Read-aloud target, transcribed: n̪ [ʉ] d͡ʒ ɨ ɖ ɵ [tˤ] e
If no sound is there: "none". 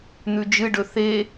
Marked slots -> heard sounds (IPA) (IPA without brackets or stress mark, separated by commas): ʉ, θ